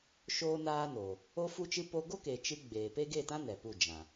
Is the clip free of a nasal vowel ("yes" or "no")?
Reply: no